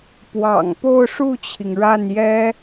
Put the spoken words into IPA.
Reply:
p w ɑ̰˨˩ ŋ p o˥˧ ʊ̯ ʂ u˥˩ t͡ɕʰ i˩ ŋ ɻ a˥˩ n j ɛ˥

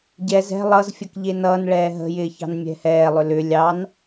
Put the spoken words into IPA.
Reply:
ɟ ɛ z ɛ̤ lˠ ʌ z fʲ ə k ʎ e n ʌː n ɭ ɛː ɦ ə̤ j ɪː ç ɑ̤ n mʲ ɛ̤ h ɛː lˠ ʏ l ʏ lʲ ɑ n

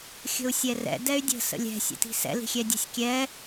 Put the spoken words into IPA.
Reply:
xʲ ə̤ u̯ sʲ ɛ r ɛ̰ d ɛ y̯ dʲ ə̤ s ə̰ lʲ ɛ̤ sʲ ə̰ t i̤ s ɛ̰ l i̤ xʲ ɛ dʲ ə̤ sʲ kʲ ɛ

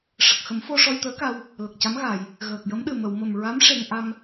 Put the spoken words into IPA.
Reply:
ʂ ə˨˩ k̚ x ə˨˩˦ m f o˧ ʂ ɔ˧ j t̪ əː˧˥ k a˧ w | l ə˨˩ k̚ c a˧˥ m ɣ a˨˩˨ j | ɣ əː˨˩ k̚ j ə˧˥ m ɗ ɨ˨˩ m ə˨˩˨ w m ə˨˩ m ɹ a˧˥ m ʂ e˧ ŋ ʔ a˧ m

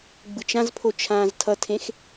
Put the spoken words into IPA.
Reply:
ɡ͡b ɯ t͡ʃ ã z pʰ o t͡ʃʰ ãː z tʰ ʌ tʰ ẽ x

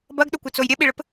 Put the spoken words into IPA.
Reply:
b ɐ ɡ ɗ ʊ kʷ ɘ t͡s o j ɾʲ ɛ ɓ i ɭ ɘ p

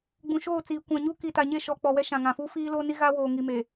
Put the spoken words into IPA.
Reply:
ɡ͡b ũ˨ ʃ oː˦˨ t͡s iː˨ kʷ ã˨ ɲ u˦ k i˨ t a˨ ɲ e˦˨ ʃ ɔ˨ k͡p ɔ˨ w ɛ˦ ʃ ã˨ ŋ ã˨ f uː˦ f iː˦ l oː˦ n i˦ ɣ aː˦ w oː˨ ŋ i˨ m e˨

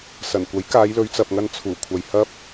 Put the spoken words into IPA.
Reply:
s ɐ˨˩ n kʷ ɐ˨˥ j k aː˨˧ j l ɵ˨˧ ɥ t͡s ɐ˨ p̚ ŋ ɐ˧ n t͡sʰ uː˨˩ kʷʰ ɐ˨ j h ɐ˥ p̚

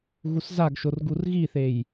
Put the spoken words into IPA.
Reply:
ɣ u s z a ɡ ʃ o r ɡ u r ɣ i θ e j

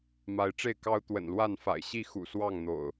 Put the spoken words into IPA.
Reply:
m a˨˦ ɪ̯ ʈ͡ʂ e˥˨ ɪ̯ k ɑ˦ ʊ̯ t̪ w ə̰˨˩ n l w a˥˨ n f a̰˨˩ ɪ̯ ɕ i˥˨ x ṵ˨˩ s w ɑ˥˨ ŋ n̪ o̰˨˩ ʊ̯

